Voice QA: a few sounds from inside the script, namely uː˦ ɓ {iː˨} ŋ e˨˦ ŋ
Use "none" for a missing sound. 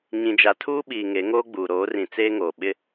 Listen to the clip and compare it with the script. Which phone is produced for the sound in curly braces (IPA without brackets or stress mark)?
iː˨